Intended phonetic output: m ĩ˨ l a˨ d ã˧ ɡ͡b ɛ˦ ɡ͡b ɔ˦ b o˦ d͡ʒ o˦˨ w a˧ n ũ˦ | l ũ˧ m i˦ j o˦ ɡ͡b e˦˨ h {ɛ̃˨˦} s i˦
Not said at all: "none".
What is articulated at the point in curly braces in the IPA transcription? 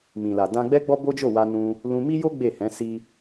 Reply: ɛ̃˨˦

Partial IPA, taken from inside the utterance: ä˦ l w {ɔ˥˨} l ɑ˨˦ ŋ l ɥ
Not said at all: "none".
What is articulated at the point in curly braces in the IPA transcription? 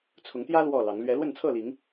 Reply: ɔ˥˨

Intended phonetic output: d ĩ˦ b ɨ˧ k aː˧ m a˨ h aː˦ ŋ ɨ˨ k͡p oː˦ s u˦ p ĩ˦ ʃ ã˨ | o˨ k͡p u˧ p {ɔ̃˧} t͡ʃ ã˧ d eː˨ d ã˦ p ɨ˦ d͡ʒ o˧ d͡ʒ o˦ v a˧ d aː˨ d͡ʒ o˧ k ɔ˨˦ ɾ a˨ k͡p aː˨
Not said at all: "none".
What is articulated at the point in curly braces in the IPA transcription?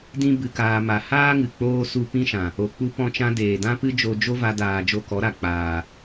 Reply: ɔ̃˧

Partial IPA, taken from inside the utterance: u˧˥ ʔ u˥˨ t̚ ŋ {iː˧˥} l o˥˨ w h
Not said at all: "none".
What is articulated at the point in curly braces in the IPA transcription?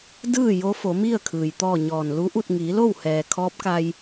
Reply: iː˩˧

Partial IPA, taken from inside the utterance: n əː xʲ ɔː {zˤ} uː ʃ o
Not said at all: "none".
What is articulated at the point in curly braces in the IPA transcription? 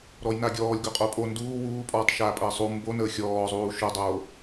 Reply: zˤ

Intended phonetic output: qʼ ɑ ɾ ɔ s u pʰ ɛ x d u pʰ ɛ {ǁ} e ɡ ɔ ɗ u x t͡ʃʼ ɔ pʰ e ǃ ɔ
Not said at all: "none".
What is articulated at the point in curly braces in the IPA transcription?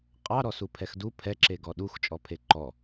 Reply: ǁ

